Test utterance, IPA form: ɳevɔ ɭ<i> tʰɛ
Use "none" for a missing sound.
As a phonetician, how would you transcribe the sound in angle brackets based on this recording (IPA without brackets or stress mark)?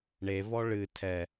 ɨ